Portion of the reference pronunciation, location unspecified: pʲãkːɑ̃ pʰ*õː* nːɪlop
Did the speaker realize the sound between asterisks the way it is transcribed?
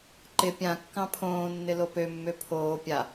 yes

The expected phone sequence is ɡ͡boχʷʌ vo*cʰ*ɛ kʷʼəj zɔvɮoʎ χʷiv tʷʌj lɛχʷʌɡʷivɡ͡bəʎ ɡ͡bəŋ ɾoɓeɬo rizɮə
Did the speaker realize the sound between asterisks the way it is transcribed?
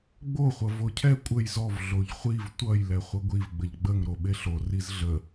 yes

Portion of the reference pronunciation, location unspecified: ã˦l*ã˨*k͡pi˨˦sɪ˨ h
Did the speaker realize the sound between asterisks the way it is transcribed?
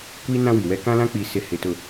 no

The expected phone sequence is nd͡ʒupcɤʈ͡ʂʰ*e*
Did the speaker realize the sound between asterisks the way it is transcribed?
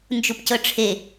yes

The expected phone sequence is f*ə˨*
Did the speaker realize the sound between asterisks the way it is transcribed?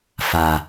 no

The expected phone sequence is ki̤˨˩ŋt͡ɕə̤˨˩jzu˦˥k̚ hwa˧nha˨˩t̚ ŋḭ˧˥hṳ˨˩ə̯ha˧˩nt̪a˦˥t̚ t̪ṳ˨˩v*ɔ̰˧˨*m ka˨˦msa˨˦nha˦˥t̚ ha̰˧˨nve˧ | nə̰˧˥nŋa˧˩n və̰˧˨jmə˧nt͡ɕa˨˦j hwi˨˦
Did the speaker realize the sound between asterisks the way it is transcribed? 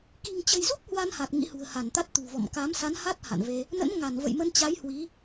yes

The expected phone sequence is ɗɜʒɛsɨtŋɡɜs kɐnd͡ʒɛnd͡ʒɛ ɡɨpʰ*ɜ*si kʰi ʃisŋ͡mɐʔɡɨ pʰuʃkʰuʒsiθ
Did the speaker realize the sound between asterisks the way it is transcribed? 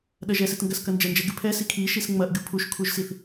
no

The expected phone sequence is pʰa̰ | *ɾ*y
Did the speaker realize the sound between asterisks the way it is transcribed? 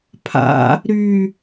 yes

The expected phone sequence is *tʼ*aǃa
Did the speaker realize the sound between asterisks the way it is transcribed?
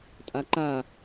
yes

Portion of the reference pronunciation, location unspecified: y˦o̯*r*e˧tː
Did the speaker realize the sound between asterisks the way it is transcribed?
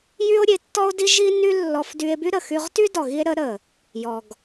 no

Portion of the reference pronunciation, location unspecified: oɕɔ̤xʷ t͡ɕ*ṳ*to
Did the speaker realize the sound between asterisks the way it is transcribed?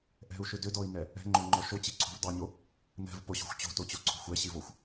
no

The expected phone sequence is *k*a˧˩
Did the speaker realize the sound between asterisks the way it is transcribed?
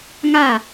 no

